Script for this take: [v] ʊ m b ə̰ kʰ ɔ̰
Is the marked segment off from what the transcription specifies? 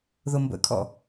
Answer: yes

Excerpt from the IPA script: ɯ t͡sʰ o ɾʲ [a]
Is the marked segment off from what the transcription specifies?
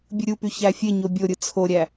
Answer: yes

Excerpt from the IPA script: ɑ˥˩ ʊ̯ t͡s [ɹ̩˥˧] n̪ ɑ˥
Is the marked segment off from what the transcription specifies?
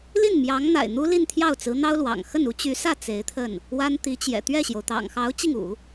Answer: yes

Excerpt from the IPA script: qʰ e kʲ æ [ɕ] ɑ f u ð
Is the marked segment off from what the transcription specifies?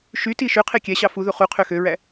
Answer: no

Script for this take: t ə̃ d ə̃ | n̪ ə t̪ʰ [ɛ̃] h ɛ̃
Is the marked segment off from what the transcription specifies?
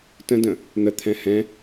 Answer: no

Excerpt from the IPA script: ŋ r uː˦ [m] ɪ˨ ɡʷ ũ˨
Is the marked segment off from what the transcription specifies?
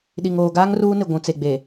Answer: yes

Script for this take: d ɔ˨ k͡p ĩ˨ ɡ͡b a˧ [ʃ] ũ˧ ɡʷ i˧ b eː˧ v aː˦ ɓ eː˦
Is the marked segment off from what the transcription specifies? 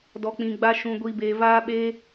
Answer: no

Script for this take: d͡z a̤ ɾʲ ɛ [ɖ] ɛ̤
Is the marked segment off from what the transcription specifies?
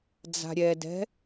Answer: yes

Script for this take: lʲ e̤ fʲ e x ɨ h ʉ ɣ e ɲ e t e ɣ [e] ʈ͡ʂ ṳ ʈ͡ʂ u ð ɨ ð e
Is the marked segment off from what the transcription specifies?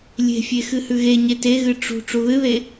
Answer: yes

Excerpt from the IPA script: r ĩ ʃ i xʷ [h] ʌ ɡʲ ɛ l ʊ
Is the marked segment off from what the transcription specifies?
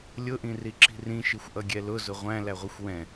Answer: yes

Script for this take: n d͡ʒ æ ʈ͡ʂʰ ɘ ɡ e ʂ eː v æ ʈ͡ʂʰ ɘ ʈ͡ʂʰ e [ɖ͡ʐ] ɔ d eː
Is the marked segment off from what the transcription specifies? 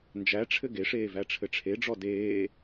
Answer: no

